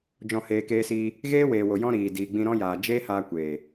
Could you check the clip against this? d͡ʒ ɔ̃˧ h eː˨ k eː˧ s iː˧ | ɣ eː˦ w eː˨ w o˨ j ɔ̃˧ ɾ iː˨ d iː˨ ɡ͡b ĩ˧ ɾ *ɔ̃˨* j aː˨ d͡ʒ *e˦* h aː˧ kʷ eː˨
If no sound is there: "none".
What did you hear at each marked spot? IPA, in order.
ɔ̃˦, eː˦

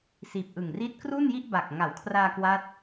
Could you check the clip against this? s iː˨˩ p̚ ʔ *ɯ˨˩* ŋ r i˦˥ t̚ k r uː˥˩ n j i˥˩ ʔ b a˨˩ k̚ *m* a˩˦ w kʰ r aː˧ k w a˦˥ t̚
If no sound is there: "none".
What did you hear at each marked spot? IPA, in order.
ɯ˨˩, ŋ

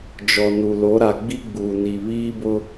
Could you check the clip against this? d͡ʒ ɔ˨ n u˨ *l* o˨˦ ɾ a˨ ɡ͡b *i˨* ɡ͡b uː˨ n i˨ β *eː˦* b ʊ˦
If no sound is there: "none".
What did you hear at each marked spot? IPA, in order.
l, i˦, iː˦

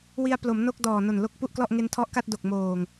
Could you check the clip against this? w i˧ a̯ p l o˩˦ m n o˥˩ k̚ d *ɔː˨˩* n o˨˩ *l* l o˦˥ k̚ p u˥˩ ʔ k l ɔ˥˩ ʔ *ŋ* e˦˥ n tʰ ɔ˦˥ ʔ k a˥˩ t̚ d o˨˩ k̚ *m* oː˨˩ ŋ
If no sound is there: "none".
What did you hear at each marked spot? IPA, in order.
ɔː˨˩, n, ŋ, m

